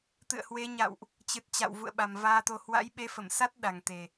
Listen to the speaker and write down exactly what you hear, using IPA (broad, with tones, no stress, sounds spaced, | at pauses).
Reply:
t̪ ɨ̰˧˨ ə̯ h w e˨˦ ɲ a̰˧˨ w ʔ | t͡ɕ ɨ˨˩ t̚ t͡ɕ a̰˧˨ w v ṵ˧˨ ə̯ ɓ a˨˩ m v aː˧ t̪ o˧ h w a̰˧˥ j ɓ e˨˦ f ə˧˩ m s a˦˥ t̚ ɗ a˨˩ ŋ t̪ e˨˩